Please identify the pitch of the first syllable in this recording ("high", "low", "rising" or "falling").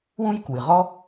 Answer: high